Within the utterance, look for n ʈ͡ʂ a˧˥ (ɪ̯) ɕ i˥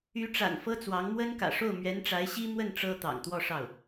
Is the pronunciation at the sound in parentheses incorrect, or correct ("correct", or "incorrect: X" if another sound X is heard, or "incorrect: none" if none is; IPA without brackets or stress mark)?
correct